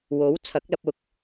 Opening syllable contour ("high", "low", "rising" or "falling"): rising